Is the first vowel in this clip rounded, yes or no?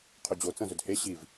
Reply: yes